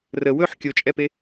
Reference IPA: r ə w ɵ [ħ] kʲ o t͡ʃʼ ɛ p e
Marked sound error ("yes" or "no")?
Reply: no